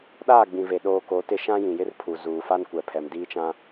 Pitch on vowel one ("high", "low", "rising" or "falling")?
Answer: falling